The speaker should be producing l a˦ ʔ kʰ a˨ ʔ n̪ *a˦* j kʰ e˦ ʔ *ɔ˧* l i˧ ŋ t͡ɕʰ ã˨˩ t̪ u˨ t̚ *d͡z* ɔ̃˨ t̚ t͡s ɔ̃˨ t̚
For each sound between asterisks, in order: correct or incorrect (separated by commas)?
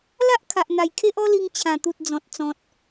incorrect, incorrect, correct